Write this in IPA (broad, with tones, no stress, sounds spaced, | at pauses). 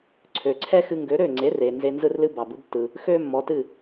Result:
ǀʰ ø˩ ǀʰ ɛ˥ x ɨ˧ ŋ ɡ ø˩˥ ɾ ø˥˩ ŋ͡ǀ e˩˥ r e˩ n z e˧ n z ɯ˥ r l ɨ˥ b ɑ˩ b ɯ˩˥ b tː ɯ˩ | x ø˥ mː ɔ˩˥ t ɨ˥˩